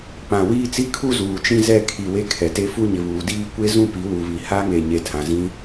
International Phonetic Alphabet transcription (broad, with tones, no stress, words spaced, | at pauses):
k͡pã˨wiː˦t͡si˦ kʰu˦ zuː˨t͡ʃĩ˦zɛ˦˨ kʰi˨we˦ kʰɛ˨te˦fu˦ ɲɪ˨βuː˨diː˦ kʷe˦ zũ˦pi˨˦wu˨βi˨ ha˦ŋe˨ɲe˨tʰã˨ zĩ˦